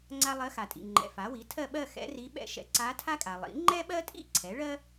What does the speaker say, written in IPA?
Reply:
ŋ͡ǀ a˥ lˠ ɜ˧˥ x a˨ tʼ ḭ˨ ŋ͡ǃ ɛ̰˨ f a˩˥ w i˩˥ tʰ ɜ˥˧ ɓ ɜ˥˧ x ɛ̰˧˥ r i˧˥ ɓ ɛ̰˥ ʃ ɛ̰˧˥ ǀ a˧˥ tʰ a˥ kʼ a˨ lˠ ḭ˩˥ ŋ͡ǃ ɛ˥ ɓ ɜ˥ tʼ ḭ˥˧ ǀʰ ɛ˩˥ ɭ ɜ˥

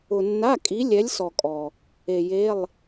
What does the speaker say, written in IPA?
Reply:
ʊ˨ nː a˧˥˧ kʼ i˨˦ lʲ ɛ˨˦ lʲ s ɔ˨ kʼ ɔ˨ | e˨ j e˧˥˧ lˠ

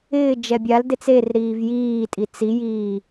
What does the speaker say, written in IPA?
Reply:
ɪː d͡ʒ ɛ bʲ a l d e t͡s e r ɾ iː v j iː tʼ i t͡s i j iː

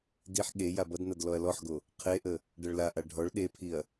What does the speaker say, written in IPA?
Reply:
d i ħ ɠ e j a b ʌ d n ʌ d l ɔ ɐ̯ l ɔ ħ ɡ o | qʰ e ʔ ə | ɖ ʌ ɭ l a ʔ a ɖʱ ɔ ɭ ɗ e pʰ i ɐ̯

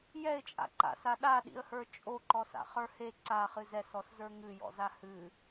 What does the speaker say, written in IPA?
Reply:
j ɛ ɪ̯ t͡ʃʼ a̰ ǃ a̰ s a ɗ a ɗ ḭ ə̯ h ə˞ t͡ʃʼ o ǃ ɔ s a̰ χ ə˞ h e ǀ a χ ɨ z ɛ s ɔ s z ə˞ ŋ ɨ j ɔ̰ z a h ɨ

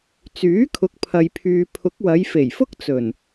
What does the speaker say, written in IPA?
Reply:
t͡s yː˨˥ kʰ ʊ˨˥ k̚ pʰ ɐ˨ j pʰ yː˨ pʰ ʊ˨˥ k̚ w ɐ˨˧ j f e˨˩ j f ʊ˥ k̚ t͡s ɵ˨˩ n

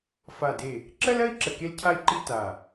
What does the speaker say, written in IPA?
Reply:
f a˧˩ d e˧˩ | ǁ ɜ˥ l ɜ˥ i̯ ǁ ə˧˩ k e˥ l cʰ a˥ i̯ ǃ i˥ t a˧˩

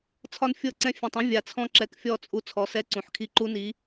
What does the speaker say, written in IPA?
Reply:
t͡sʰ ɒ˦ n fʲ ɤ˦˨ ǀ ɛ̃˦ fʲ ɛ̃˨ tˤ ũ˦ vʲ a˨ t͡sʰ ɔ̃˦ ǁ ɛ˨ k fʲ ɔ˦˨ t͡sʼ u˦ t͡sʰ ɔ˨˦ s ɛ˦ ǀ ũ˨ ħ kʰ i˦ ǃ u˦ n i˨˦

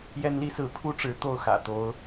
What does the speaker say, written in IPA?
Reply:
j ɛ˦ n l i˦ s ɹ̩˨˦ pʰ u˥˨ ʈ͡ʂ ɻ̩˨˦ t̪ o˥˨ ʊ̯ x ä̰˨˩ t̪ o˨˦ ʊ̯

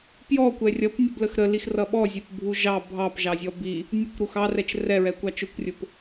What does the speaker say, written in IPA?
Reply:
p j ɔ kʷ ɛ rʲ ʌ p nʲ ə b l ə x ɾ ə l i x r ʌ ɓ ɔ zʲ ɛ p bʱ u ʒ ɑ bʱ ɑ p ʒ ɑ zʲ ɔ b i | nʲ ʊ kʷ ɾ u x ɑ r ɛ t͡ʃ r ɛ ɹ ɛ kʷ ɑ t͡ʃ ʊ kʷ rʲ ʊ p

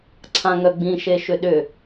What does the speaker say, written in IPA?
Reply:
ǀʰ ã ŋ œ ɡ͡b ĩ ʃ e ʃ ʏ ɗ ʏ

